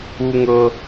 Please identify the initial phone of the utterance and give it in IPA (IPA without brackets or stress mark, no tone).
u